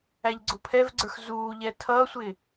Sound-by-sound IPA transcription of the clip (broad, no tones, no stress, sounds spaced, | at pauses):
æ ʎ ɡ͡ǀ ʊ pʰ ɛ v ɡ͡ǀ ə˞ x z uː ʎ ɛ tʰ ʌː sʷ ɪ